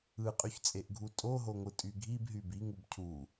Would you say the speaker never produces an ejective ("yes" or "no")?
no